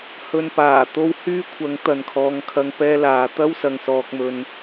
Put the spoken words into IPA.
hɵ˧n paː˨˩t̪o˥w hyː˥kʷʰɐ˨˥ŋ t̪ɐ˨nkʰɔː˨˧ŋkʰɐ˧ŋ pɛː˥laː˨˥ t̪ɐ˥wsɐ˨ŋsɔː˨k̚mɵ˨n

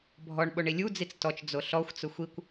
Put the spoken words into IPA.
bʱɔɳɓoɳi lʲud͡zit͡s tɔt͡ʃd͡zo ɬɔxʷt͡sʊ xʷikʷ

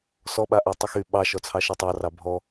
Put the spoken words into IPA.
sɔɓa ʔɑtˤyxy ɓɑʃɔt͡sʰɑ ʃɛtˤɑrɑ bʱɔ

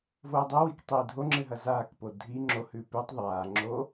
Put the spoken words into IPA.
voːdˤowik tˤiːdʱoŋ͡ǁɨ ɦɐzaːkpo dʱi ŋ͡ǁohʉː pʉtˤ ðˤaːŋ͡ǁoː

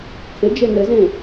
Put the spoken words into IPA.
kʰɪd͡ʒe nɘzẽ

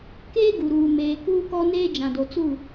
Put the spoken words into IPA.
keː˦ ɡu˨ɾuː˨ meː˨ kuː˦kɔ˦neː˦ d͡ʒã˨do˨t͡su˦˨

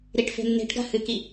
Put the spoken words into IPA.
ɾiʈfe̤nːe̤ʈɡa̤ hɨki

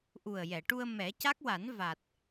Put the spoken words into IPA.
ʔu˨˩ə̯jɛ˨˩˨ʈu˧ə̯ mɛ˨˩˦ca˦˥k̚wa˨˩˦n va˨˩t̚

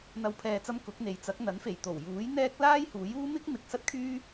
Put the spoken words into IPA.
n̪ɐ˨wpʰɛː˨t͡sɐ˧m kʊ˨˥k̚n̪e˨j t͡sɐ˨˥k̚n̪ɐ˨˥nfe˨˩j t̪o˨˩wjuː˨˥j n̪ɛː˥k̚ laː˥jhuː˨˥juː˥ mɪ˥k̚mɪ˨k̚ sɐ˥t̚kʰyː˥

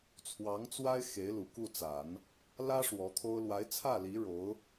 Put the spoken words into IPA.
t͡sʰwɑ˧˥ŋt͡swa˥ɪ̯ xe˧˥ɪ̯lu˨˩ku˥˩t͡sa˨˩˦n | lä˥ ʂwɔ˧˥t̪ʰo˥ʊ̯ lwa˧˥ɪ̯t͡sʰä˥˩li˧˥ ɻo˧˥ʊ̯

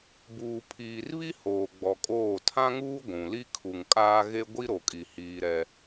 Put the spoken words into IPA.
buː˨ pʰiː˨rβi˦ hoː˨ɡ͡bɔ˨kʼoː˦˨ tʰã˦ŋuː˦ ɡʷũ˨li˦ kʰu˨ŋkʼaː˦ ɣe˦ɡʷi˦ ɾo˨kʼi˨ hiː˦ɾɛ˦

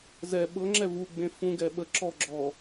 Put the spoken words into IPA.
zɛ ɓɤŋ͡ǁɛ vuɡ͡bẽ fũɡɛ ɓə ǁɔ ɡ͡ǁɔ

